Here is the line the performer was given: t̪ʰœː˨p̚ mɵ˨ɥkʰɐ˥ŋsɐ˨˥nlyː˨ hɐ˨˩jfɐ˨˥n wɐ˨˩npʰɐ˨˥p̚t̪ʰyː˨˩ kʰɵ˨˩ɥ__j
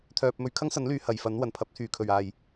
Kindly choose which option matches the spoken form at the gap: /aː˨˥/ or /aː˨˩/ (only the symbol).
aː˨˩